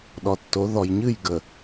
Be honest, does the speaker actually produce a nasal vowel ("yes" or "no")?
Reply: no